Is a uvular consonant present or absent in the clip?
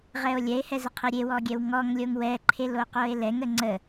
present